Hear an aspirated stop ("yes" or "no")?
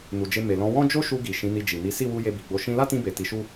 no